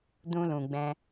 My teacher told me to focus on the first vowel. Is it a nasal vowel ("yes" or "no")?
yes